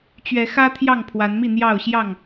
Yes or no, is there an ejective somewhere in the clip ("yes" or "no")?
no